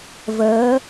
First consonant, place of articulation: labial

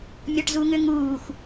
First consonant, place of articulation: labial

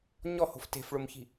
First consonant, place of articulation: palatal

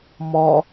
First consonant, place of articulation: labial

